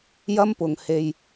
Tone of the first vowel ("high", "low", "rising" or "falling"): high